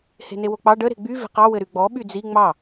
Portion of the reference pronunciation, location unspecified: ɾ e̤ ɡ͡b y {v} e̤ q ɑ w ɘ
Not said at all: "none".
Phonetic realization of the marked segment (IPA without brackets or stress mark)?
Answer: v